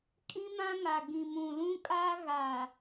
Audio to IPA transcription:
kʼ ĩ˦ m ã˦ ŋ a˨ ɡ ĩ˨ m ũ˨ l ũ˦ kʼ aː˦ ɣ a˨

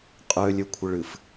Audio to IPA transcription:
qʼ ø lʲ ø kʷʰ ə ɭ ɨ f

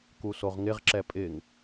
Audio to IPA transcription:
k u s o ʁ ŋ ɪ ʁ ǁ ɛ pʼ ɪ ŋ

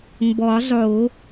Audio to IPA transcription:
m b ɔ˨˩˦ zˤ o˨˩˦

